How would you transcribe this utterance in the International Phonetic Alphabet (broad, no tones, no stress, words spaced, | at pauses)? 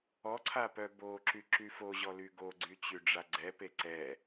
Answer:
ɔǀʰa pœboǁy ǁyfoʑɔ lyɡoɡ͡ǀy t͡ɕyɖ͡ʐaɡ͡ǀɛpe ǀɛ